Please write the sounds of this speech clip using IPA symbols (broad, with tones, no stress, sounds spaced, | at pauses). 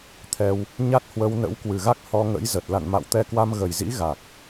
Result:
t̪ʰ ɛ˧ w | ɲ a˦˥ t̚ h w ə˧ w n ə̰˧˥ w k w ɨ˨˩ ɣ a˦˥ k̚ h ɔ˧ ŋ ə̰˧˥ j z ə˨˩ t̚ l a̰˧˨ n m a̰˧˨ w t̪ ɛ˧ k w a˧ m ɣ ə˨˩ j z ḭ˧˥ ɣ a˨˩ k̚